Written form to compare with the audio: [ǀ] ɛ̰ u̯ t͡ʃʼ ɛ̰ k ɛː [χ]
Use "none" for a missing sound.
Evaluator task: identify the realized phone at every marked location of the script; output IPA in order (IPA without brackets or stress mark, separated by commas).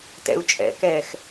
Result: t, x